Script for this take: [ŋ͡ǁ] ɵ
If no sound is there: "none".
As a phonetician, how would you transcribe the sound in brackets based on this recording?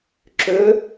ǁ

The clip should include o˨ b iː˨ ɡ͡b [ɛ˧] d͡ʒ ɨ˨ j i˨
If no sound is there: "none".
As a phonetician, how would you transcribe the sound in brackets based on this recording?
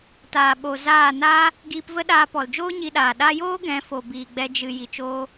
ɛ˧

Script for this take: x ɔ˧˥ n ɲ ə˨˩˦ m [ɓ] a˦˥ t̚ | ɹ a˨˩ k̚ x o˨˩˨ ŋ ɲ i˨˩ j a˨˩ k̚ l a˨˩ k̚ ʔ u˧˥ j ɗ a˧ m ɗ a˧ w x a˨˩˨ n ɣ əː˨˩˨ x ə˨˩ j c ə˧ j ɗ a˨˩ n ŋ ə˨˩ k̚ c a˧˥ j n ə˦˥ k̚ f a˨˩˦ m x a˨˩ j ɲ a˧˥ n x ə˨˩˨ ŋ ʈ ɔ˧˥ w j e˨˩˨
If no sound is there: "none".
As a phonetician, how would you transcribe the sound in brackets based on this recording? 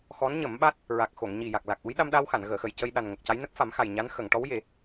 ɓ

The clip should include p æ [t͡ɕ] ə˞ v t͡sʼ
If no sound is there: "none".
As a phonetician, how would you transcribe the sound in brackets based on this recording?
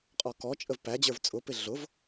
d͡ʑ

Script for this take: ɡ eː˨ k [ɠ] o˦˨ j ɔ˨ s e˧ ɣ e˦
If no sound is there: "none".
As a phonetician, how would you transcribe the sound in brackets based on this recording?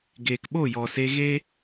ɓ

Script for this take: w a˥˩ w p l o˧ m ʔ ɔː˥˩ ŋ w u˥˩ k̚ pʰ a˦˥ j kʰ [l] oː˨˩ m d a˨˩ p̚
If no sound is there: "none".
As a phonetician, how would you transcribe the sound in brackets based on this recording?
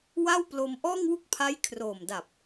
r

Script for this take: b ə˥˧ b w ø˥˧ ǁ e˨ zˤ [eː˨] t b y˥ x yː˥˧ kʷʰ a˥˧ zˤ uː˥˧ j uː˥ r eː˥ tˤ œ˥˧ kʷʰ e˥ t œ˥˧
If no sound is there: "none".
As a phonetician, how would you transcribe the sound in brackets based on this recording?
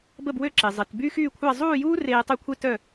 e˨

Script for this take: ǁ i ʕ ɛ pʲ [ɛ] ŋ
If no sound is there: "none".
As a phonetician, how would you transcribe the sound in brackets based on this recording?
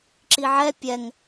ɛ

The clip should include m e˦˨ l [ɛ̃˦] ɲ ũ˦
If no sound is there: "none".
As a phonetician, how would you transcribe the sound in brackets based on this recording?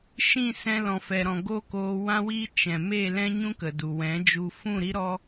ɛ̃˦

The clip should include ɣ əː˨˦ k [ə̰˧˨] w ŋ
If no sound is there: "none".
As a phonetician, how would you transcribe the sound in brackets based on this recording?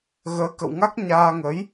ə̰˧˨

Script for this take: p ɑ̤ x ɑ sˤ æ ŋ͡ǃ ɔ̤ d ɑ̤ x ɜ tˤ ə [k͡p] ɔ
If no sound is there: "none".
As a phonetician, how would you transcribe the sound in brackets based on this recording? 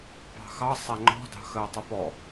p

